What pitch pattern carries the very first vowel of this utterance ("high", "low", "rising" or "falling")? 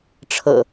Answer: low